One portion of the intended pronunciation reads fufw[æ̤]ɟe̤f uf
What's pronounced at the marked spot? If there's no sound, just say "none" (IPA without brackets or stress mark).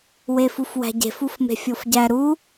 æ̤